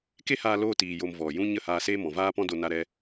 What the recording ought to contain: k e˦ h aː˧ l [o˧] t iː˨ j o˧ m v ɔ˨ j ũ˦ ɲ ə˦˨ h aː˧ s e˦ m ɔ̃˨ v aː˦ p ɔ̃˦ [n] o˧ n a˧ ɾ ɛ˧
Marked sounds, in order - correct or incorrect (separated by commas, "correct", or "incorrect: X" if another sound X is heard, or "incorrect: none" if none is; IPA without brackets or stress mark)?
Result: incorrect: oː˧, incorrect: d